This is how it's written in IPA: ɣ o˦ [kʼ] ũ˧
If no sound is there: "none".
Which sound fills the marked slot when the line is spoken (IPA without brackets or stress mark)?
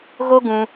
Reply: ɡ